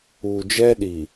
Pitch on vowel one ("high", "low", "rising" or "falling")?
low